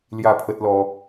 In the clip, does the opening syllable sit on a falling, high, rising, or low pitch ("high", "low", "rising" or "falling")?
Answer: falling